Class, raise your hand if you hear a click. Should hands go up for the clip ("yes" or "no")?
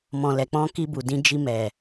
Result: no